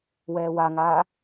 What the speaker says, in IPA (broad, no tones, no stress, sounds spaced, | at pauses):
w ɛː w a ŋ aː